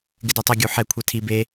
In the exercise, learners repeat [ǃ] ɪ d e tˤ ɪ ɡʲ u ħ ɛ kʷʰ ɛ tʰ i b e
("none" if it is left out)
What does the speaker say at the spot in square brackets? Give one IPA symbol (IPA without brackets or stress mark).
ɡ